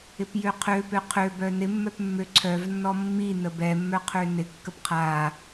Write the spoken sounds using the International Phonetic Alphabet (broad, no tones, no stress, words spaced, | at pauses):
ɪpjøqʰøpø qʰøbœ nɪmːœpmːø ǀʰœvnːɔ mːi nəbɛmːœqʰø nɪkːəp qʰa